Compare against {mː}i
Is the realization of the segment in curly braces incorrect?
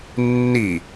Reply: yes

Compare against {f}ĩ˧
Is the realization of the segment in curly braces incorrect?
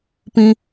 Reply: yes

